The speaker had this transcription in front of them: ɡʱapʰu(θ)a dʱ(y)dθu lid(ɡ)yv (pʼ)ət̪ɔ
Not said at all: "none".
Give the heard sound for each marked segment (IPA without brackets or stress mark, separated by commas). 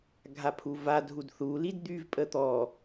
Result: v, u, d̪, pʼ